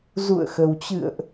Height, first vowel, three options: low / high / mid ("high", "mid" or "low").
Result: high